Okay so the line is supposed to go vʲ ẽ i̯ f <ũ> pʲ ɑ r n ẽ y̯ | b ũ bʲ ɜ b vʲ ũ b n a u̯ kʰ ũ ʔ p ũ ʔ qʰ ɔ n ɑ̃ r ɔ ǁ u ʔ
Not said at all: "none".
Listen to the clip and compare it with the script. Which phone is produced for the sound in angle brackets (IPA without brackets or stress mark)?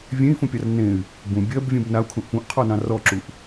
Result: ũ